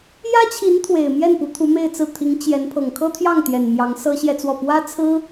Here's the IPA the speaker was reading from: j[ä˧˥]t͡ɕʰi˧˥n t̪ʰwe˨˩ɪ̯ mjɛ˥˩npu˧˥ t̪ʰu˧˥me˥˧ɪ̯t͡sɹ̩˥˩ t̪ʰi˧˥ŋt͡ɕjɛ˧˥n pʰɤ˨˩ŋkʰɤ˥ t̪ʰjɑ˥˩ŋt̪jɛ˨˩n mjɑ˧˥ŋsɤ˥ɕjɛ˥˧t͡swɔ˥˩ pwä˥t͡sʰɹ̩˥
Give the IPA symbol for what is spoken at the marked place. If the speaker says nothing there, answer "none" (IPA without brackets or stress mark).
ä˥